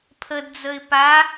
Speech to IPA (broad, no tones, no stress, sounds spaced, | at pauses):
pʰ ə d d͡z ə ɪ̯ p a